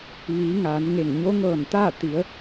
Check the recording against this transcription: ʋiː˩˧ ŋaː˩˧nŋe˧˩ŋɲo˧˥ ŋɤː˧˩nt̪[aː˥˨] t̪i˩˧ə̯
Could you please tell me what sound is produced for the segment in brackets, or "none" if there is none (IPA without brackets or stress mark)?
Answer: aː˥˨